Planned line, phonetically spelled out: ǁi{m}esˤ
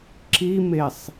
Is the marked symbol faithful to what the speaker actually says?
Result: yes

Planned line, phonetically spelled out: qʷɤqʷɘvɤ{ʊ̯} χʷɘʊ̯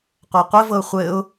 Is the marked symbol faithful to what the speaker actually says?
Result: yes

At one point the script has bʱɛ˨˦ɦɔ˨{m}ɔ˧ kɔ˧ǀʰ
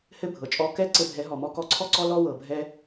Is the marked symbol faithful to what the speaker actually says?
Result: yes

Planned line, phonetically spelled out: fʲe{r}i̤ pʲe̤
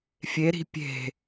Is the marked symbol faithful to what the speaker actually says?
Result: no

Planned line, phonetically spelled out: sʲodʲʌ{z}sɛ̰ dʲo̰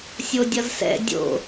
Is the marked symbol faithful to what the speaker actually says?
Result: yes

